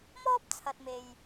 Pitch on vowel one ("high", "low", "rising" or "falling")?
high